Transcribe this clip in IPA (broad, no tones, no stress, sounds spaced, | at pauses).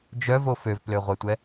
d͡ʒ œ v o f ø v p l ø ʁʷ ɛ tʷ ɛ